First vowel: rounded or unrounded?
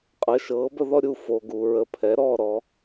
unrounded